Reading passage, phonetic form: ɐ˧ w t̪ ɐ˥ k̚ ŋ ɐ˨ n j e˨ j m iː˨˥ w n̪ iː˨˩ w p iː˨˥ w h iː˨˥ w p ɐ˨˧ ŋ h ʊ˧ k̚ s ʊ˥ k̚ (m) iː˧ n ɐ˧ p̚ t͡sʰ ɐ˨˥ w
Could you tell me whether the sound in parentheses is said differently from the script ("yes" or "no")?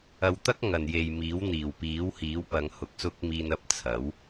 no